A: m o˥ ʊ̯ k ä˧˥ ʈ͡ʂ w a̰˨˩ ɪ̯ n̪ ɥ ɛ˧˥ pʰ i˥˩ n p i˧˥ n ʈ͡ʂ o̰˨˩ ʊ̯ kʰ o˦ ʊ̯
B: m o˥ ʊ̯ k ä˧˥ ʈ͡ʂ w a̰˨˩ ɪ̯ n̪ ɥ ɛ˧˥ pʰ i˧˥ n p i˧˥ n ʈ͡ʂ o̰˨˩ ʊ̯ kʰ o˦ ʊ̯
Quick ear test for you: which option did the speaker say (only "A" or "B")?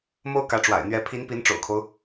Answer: B